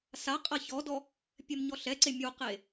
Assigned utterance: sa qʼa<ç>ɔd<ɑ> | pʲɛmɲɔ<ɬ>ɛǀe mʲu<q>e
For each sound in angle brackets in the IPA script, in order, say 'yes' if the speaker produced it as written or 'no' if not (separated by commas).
yes, no, yes, yes